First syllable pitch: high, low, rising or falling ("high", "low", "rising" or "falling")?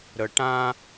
low